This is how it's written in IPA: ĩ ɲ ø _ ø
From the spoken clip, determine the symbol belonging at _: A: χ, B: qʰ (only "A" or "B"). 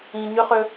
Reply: A